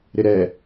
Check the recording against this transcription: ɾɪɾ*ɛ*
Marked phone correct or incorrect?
correct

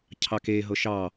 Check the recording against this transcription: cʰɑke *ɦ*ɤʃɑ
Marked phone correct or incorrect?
correct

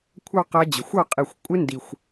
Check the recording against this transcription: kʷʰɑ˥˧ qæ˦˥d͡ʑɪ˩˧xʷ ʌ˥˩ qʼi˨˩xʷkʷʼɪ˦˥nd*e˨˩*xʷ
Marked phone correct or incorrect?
incorrect: i˨˩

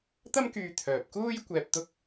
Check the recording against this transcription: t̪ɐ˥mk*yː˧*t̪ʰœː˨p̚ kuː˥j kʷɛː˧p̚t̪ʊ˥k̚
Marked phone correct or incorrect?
correct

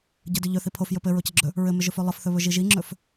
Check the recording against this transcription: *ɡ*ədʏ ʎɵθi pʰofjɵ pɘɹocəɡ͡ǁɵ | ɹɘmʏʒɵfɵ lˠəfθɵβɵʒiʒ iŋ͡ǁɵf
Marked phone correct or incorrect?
incorrect: ɟ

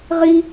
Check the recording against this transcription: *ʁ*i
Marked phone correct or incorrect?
correct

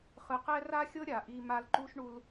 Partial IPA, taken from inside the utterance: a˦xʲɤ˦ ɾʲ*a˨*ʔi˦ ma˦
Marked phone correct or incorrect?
correct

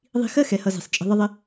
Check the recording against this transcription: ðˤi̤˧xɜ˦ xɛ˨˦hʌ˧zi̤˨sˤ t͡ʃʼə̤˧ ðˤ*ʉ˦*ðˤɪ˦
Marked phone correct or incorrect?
incorrect: ə˦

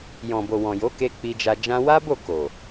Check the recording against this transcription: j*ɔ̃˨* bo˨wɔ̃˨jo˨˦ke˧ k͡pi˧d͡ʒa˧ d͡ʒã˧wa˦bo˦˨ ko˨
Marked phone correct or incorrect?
correct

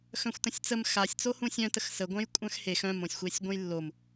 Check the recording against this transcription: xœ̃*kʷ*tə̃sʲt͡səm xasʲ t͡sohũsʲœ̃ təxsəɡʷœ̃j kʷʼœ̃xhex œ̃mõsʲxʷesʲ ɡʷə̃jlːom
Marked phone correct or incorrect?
incorrect: xʷ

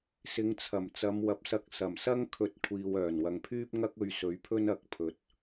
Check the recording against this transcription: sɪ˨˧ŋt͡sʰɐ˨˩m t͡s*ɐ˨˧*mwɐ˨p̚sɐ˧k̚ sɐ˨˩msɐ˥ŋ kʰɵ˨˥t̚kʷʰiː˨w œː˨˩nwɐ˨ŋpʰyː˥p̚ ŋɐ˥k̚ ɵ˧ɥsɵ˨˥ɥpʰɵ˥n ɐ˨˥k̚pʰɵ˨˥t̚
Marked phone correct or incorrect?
correct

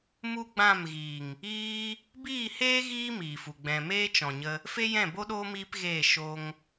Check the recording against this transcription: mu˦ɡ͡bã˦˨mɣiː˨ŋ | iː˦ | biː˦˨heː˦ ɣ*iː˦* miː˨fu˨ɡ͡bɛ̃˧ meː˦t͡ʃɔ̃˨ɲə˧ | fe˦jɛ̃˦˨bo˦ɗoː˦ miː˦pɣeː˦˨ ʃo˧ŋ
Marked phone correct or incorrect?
correct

